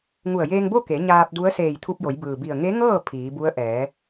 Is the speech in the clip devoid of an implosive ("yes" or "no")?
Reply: yes